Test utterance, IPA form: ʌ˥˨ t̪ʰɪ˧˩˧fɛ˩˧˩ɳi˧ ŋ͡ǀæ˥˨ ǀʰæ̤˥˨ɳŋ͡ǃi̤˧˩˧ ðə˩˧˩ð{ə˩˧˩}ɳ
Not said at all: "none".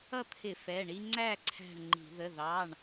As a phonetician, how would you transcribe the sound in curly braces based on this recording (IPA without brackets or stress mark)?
ɑ˩˧˩